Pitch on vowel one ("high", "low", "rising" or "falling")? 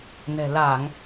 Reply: low